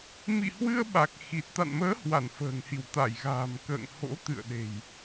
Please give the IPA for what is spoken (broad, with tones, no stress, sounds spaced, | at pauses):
m ḭ˧˨ h w ɨ˧ ə̯ ɓ a˨˩ k̚ x i˨˩ t̚ t̪ a̰˧˨ n m əː˨˦ h w a˧˩ n f ə̤ː˨˩ ŋ h i˧˩ w t̪ a˧˩ j ɣ a̤ː˨˩ m k ə̰ː˧˨ ŋ h o̰˧˥ t̪ ɨ̰˧˨ ə̯ ɗ e̤˨˩ j